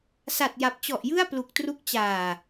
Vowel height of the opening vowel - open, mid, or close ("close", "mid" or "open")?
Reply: open